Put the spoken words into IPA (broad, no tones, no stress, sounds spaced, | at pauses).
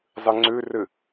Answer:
zˤ ɨ ŋ͡ǀ ʉ r ɨ